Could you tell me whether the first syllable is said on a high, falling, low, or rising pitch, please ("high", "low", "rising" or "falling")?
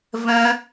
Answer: high